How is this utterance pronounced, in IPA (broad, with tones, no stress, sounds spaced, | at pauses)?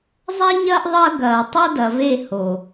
zˤ a˦ ɲ ɐː˦ ʔ ðˤ ɐː˦ ɡ ɐː˨ tˤ o˦ d ɐ˨ v e˦˨ h o˨